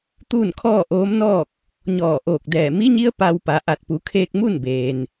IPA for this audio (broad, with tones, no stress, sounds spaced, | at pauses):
t̪ uː˥˨ n kʰ ɔː˥˨ ʔ oː˧˥ m n ɔː˥˨ k̚ | ɲ ɔː˧˩ ʔ oː˧˩ k̚ d ɛː˧˩ m i˧˥ ɲ i˧˥ ə̯ p a˧ w p a˩˧ ʔ a˧˩ t̚ p u˩˧ kʰ eː˧ k̚ m u˥˨ n b eː˩ n